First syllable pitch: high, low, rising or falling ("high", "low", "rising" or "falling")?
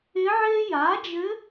rising